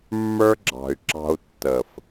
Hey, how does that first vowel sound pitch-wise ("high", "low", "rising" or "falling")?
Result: high